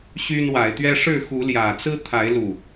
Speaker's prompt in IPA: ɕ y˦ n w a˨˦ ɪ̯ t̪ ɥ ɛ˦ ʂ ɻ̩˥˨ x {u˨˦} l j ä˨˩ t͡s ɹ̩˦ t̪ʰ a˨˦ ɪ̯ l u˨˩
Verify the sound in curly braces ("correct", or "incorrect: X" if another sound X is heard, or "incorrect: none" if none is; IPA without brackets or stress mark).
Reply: correct